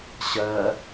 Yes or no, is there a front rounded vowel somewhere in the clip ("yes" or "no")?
no